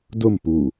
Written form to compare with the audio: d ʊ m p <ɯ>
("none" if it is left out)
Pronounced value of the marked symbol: u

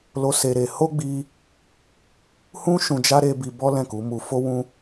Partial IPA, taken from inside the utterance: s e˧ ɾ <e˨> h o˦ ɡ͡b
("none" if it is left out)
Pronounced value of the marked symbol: e˧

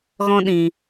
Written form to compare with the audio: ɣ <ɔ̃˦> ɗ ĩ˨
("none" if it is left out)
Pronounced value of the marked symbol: ɔ̃˦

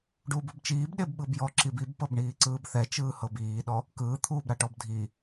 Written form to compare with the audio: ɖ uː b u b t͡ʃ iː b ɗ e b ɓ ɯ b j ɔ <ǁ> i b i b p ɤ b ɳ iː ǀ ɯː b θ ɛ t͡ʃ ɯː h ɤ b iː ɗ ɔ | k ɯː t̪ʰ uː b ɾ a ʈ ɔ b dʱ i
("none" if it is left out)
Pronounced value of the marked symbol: ǁ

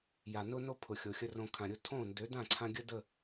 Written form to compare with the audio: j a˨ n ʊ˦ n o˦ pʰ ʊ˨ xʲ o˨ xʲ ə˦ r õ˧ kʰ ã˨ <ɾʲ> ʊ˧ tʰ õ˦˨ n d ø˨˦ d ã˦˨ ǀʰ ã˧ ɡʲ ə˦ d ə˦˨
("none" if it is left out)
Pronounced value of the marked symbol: ɾʲ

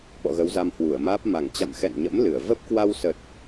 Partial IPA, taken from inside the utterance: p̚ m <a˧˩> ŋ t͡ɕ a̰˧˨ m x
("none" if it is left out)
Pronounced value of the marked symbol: a˧˩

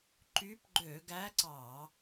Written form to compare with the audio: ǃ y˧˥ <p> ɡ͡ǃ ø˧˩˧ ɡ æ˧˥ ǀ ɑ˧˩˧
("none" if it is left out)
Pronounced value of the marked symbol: p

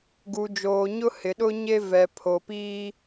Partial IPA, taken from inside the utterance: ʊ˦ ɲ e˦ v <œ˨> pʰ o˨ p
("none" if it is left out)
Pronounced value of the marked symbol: ɛ˨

